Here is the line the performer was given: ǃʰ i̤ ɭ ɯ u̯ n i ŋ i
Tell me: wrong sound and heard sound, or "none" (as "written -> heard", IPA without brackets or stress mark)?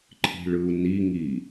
none